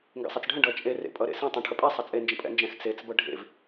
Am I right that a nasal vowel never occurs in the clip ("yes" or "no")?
no